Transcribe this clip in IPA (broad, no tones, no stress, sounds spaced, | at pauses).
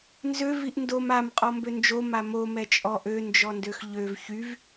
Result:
n z ø v i ʔ n d o m a m qʼ ɔ m b ø n d͡ʒ o m a m o m ɛ t͡ʃʼ ɔ ʔ ø n d͡ʒ ɔ n d ø x ʎ ø v ç y v